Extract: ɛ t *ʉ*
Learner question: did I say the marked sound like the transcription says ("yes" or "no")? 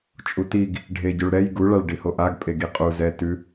yes